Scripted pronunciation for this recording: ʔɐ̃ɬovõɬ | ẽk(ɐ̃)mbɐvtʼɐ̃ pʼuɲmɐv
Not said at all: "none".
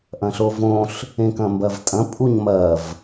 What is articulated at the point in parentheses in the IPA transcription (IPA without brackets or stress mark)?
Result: ɐ̃